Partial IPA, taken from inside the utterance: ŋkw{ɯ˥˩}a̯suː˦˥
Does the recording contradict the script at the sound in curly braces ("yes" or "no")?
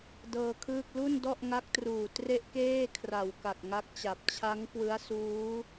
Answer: yes